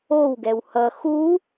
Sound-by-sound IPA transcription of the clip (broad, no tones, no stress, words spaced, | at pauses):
owɡɛw hʌ xu